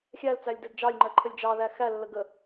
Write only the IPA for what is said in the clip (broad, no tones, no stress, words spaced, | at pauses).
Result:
xʲælt͡sælʲ dɛdd͡ʒɑlʲŋ͡ǃɜ ǃʰəlʲd͡ʒɑðæ xælːə ɡə